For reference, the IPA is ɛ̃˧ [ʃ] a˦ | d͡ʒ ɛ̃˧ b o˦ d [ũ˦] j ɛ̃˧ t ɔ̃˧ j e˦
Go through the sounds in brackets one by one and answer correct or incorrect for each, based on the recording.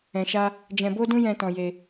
correct, correct

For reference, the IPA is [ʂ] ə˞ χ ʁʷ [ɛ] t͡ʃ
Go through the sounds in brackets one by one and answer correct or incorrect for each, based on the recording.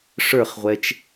correct, correct

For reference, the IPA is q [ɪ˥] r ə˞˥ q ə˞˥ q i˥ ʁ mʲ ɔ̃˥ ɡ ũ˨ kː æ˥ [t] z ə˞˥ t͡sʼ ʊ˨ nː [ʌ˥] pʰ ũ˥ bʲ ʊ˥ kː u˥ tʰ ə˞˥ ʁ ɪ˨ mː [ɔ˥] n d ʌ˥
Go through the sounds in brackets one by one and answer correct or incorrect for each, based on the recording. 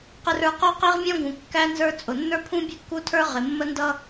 correct, incorrect: n, incorrect: ə˞˥, incorrect: ə˥

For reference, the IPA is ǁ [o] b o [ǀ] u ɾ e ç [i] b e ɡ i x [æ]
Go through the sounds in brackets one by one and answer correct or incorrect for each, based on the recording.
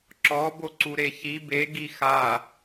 incorrect: ɔ, correct, correct, incorrect: a

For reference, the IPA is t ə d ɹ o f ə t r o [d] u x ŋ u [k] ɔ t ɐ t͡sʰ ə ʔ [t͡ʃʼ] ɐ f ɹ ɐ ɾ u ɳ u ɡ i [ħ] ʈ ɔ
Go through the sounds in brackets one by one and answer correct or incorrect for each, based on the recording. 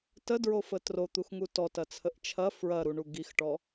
incorrect: t̪, incorrect: t, incorrect: t͡ʃʰ, incorrect: x

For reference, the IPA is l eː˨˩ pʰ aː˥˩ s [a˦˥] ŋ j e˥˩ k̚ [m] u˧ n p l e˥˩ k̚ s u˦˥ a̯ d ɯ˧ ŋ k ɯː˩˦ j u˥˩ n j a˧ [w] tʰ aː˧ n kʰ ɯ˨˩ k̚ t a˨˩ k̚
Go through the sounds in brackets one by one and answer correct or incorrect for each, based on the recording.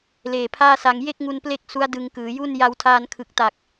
incorrect: a˧, incorrect: ŋ, correct

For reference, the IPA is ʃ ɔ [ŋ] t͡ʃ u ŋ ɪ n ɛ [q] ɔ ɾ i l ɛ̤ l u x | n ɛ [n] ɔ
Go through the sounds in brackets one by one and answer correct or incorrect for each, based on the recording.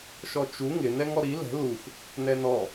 incorrect: none, incorrect: ŋ, correct

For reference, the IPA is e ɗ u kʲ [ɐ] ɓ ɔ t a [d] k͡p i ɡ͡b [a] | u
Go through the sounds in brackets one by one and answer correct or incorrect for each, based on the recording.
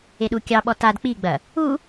incorrect: ɑ, correct, incorrect: ɐ

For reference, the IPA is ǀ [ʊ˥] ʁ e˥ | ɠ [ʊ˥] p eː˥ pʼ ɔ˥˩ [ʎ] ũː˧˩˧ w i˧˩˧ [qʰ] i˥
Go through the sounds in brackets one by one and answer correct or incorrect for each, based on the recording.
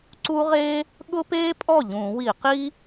incorrect: u˥, correct, correct, incorrect: q

